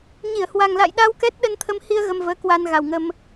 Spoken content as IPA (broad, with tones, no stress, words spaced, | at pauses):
ɲi˧˩ə̯hwa˨˩ŋla̰˧˨jɗa˧w kɛ˦˥t̚ɗə˧nt̪ʰə˧mhi˧ə̯ ɣə˧mvəː˨˦kwa˧n ɣa˨˩wŋə˧m